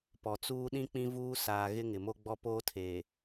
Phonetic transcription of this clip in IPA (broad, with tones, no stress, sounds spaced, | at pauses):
p ɔ˨ t͡s uː˦ ɗ ĩ˦ k͡p ĩ˦ v uː˦ s aː˨ ɣ ɪ˦ ŋ ɪ˨ m o˦ ɡ͡b ɔ˦ p oː˦ tʰ eː˨